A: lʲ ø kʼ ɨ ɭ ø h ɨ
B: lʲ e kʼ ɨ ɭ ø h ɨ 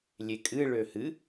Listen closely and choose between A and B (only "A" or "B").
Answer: B